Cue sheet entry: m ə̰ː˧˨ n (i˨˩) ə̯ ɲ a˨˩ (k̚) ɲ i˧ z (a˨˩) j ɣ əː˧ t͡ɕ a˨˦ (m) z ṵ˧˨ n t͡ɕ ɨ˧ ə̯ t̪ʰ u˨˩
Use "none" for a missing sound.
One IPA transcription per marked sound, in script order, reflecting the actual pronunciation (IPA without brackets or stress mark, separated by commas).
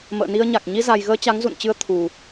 i˧, k̚, a˨˩, ŋ